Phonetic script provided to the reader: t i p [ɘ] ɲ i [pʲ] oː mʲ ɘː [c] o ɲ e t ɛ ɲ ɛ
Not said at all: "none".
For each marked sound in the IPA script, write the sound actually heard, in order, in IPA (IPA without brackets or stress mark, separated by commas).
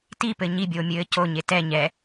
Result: ɘ, bʲ, c